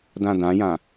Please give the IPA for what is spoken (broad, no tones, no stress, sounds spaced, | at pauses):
d ã d ã j ã